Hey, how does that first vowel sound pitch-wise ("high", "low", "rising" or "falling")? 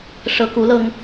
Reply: low